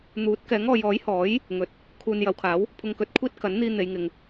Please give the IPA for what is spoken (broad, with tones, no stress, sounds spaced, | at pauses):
n̪ uː˨˥ t̚ k ɛː˨˥ ŋ ɔː˨˧ j ɔː˨˥ j h ɔː˨˥ j | ŋ ɵ˨ t̚ | kʰ uː˨ n j ɐ˨˧ w kʰ aː˨˥ w | pʰ ʊ˧ ŋ k ɵ˧ t̚ kʷʰ iː˥ t̚ k ɐ˨˥ n n̪ iː˧ n̪ e˨˧ j ŋ ɪ˨ ŋ